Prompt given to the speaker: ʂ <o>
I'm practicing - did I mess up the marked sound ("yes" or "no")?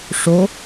no